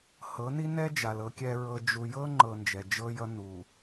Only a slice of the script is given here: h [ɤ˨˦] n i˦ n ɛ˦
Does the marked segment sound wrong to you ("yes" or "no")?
no